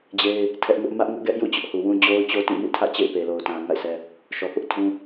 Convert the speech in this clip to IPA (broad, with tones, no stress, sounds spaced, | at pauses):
d͡ʑ e˦ ɪ̯ | tʰ ɛ˦ ʔ ŋ ʊ˦ ʔ m ä˦ ʔ ŋ ʊ˦ ʔ ɡ ɛ˦ ʔ j ṵ˦˨ t͡ɕ ʊ˦ ʔ h u˨ w ũ˦ d͡ʑ o˦ ʊ̯ t͡ɕ o˦ t ĩ˦˨ m ḭ˦˨ tʰ ä̰˦˨ t͡ɕ ḛ˦˨ ɪ̯ p e˨ l o˨ ʊ̯ t ã˨ ŋ a̰˦˨ ɪ̯ s ɛ˦ | ʃ ɔ˨ p ʊ˦ ʔ tʰ ũ˦